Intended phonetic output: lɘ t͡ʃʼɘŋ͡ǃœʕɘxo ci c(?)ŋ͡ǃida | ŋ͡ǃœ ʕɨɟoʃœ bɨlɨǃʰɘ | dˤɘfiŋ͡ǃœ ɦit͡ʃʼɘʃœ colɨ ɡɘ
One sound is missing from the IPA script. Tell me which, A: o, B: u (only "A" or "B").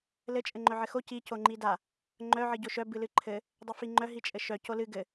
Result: A